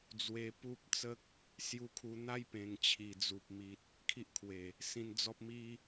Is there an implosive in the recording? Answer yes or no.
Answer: no